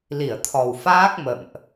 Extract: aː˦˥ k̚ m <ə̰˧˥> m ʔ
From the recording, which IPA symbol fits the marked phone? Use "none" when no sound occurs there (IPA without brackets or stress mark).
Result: ə̰˧˨